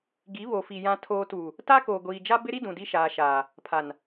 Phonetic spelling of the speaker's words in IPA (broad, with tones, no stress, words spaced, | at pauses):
ɡi˨˦βo˨fi˨ jã˨tʰoː˨tuː˨ | taː˦koː˨ɡʷiː˨d͡ʒa˦ bɪ˦ɾi˦ dũ˨di˦ʃaː˨ʃaː˨ | pʰa˨n